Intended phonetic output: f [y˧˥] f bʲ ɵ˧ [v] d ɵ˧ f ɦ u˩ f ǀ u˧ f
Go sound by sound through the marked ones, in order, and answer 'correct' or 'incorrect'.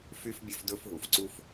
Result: incorrect: y˧, incorrect: f

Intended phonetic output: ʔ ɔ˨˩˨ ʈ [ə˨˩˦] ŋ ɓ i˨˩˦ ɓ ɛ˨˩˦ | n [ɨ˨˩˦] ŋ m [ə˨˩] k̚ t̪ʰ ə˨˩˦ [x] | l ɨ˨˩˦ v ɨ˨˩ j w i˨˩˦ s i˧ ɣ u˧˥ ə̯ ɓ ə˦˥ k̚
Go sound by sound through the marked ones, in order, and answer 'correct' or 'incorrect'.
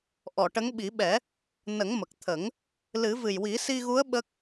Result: incorrect: ə˧˥, incorrect: ə˨˩˦, correct, incorrect: ŋ

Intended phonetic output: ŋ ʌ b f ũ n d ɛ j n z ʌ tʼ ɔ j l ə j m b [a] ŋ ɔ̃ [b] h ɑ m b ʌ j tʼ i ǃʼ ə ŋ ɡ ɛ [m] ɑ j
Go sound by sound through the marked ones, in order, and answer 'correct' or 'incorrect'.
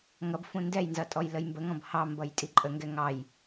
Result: incorrect: ə, correct, incorrect: ŋ

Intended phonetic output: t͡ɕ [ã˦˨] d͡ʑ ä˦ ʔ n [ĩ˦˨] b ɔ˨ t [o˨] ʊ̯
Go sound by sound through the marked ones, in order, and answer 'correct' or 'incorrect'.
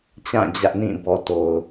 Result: correct, correct, correct

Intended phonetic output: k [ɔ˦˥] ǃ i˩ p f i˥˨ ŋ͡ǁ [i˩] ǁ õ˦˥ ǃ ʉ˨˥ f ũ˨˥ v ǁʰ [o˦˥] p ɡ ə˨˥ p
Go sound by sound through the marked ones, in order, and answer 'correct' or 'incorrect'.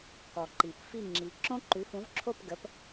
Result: incorrect: ɔ˩, incorrect: i˨˥, incorrect: o˥˨

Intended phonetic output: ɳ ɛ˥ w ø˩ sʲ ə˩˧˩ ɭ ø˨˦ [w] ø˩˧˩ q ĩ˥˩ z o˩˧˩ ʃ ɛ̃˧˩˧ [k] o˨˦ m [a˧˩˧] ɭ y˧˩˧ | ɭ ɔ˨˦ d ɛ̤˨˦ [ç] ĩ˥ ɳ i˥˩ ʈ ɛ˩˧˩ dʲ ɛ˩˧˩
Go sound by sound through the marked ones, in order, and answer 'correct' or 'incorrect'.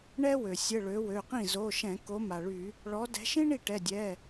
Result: correct, correct, incorrect: a˩, incorrect: ʃ

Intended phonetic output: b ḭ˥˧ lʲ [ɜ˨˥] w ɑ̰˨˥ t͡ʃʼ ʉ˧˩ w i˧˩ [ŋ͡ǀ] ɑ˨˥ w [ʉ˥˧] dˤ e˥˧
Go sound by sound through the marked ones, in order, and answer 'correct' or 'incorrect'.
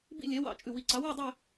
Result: incorrect: ɛ˨˥, incorrect: ǀ, correct

